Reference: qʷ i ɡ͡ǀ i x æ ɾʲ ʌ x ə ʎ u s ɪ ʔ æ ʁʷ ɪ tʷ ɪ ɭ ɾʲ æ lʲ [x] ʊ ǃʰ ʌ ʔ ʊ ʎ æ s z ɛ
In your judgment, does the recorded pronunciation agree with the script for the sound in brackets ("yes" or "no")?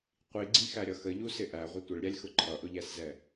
yes